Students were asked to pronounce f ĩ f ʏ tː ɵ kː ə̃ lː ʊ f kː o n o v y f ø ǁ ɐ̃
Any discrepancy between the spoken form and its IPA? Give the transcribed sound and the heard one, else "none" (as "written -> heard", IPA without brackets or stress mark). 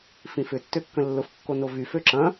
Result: ɵ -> ø